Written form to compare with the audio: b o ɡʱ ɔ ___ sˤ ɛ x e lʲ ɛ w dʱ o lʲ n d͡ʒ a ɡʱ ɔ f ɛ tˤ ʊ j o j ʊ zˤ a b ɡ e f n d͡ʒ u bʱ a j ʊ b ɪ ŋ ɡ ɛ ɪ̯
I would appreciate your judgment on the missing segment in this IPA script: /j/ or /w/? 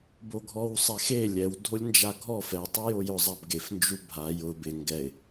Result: w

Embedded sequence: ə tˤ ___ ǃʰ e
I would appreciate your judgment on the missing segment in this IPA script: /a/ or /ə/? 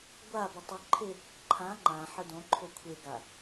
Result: ə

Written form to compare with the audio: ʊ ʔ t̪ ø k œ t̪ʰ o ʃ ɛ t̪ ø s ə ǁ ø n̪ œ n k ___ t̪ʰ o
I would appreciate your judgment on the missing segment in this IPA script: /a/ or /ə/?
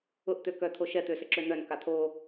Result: a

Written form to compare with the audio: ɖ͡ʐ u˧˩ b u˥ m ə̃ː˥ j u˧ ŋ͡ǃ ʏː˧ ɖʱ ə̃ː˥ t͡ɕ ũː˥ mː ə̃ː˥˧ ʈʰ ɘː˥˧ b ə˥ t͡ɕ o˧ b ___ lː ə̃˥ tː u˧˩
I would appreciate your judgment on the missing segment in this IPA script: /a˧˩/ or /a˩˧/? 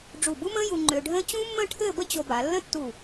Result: a˩˧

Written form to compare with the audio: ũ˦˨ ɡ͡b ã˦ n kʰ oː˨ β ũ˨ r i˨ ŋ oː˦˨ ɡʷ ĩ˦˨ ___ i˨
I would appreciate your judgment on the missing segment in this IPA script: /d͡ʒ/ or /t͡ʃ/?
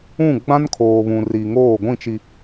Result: t͡ʃ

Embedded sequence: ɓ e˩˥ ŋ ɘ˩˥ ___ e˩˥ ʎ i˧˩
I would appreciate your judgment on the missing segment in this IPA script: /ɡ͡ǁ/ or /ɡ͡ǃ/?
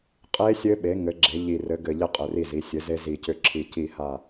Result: ɡ͡ǁ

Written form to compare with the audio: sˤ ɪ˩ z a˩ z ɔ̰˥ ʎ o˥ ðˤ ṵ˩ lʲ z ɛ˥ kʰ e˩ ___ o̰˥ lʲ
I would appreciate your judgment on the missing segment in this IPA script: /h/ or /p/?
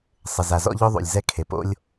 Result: p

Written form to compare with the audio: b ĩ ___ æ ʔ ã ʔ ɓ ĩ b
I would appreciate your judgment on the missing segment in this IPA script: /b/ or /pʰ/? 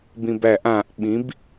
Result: b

